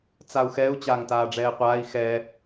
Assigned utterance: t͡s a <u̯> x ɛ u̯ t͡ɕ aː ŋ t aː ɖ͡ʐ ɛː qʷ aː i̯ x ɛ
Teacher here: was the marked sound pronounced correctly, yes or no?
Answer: yes